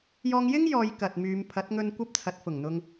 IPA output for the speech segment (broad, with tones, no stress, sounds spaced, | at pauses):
j ɔː˧ ŋ j ɪ˥ ŋ j ɔː˨˧ j k ɐ˨ t̚ m yː˨˧ m pʰ ɐ˨˥ t̚ ŋ ɵ˧ n kʷ ɐ˧ p̚ t͡sʰ ɐ˨˥ t̚ f ʊ˨˩ ŋ n̪ ʊ˧ ŋ